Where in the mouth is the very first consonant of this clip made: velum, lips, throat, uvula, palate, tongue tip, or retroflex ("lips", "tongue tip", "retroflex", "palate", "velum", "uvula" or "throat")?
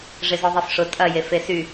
retroflex